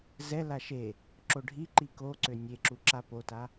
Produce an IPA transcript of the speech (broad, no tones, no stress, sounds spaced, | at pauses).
z ɛ l a ʃ e | ǁ o ɖʱ i ǃ i k o ǀ ø nʲ e ǁ u ǁ a p o t a